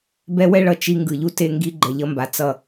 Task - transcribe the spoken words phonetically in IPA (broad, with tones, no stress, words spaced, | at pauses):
bɛ˦wɛ˦ɭʌ˨ t͡ʃi˦ ŋɡɯ˨ʎu˦ te˦ ŋɡi˦ ɡ͡ǃɛ˨ʎʌ˦mba˨ t͡sʌ˦˨